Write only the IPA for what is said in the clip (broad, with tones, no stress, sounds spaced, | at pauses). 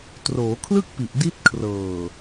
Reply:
t r oː˩˦ kʰ l ɯ˥˩ k̚ p i˨˩ ʔ d i˦˥ t̚ kʰ r ɤː˨˩